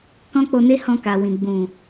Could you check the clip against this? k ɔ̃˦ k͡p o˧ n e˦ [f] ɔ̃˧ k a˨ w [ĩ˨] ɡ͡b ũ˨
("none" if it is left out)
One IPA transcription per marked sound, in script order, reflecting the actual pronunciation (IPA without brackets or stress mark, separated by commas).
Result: h, ĩ˨